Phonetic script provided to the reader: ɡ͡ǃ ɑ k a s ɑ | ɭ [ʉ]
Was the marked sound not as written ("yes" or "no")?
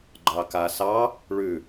no